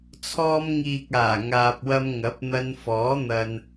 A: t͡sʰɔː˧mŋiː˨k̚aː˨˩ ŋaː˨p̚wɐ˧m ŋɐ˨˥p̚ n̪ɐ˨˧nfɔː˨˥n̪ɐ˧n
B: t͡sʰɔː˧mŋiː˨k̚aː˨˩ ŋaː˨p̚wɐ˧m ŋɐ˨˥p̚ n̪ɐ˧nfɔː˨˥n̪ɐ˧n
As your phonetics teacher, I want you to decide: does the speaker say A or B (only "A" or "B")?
B